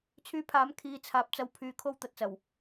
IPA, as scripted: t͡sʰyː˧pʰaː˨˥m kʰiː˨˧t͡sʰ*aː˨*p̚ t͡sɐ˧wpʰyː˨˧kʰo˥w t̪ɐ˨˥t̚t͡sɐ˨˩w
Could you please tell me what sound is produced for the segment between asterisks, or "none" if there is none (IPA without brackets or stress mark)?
aː˨